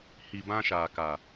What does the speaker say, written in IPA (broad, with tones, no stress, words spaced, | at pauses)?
hi˨ bã˦ʃaː˨ka˨